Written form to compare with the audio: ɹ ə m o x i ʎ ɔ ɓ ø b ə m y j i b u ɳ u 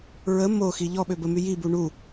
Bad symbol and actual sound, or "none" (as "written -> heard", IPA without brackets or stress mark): none